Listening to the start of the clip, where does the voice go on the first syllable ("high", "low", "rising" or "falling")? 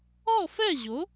falling